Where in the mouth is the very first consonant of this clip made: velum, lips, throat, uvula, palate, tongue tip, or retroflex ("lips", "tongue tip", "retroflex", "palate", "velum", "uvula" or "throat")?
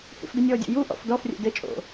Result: throat